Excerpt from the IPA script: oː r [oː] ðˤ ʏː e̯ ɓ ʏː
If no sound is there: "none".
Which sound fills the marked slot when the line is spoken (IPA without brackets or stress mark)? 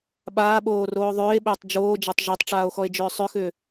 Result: oː